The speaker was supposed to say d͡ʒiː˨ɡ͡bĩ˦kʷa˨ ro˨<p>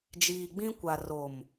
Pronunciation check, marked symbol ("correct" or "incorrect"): incorrect